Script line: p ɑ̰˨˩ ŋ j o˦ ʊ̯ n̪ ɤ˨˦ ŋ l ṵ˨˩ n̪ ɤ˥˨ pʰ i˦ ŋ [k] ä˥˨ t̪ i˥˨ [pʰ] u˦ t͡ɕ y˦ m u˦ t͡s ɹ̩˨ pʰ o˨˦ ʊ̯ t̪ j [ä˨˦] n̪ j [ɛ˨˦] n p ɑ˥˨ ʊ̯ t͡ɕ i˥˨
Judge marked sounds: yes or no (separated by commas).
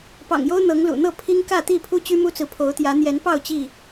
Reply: yes, yes, yes, yes